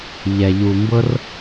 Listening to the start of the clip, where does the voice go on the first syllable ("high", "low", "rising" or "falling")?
low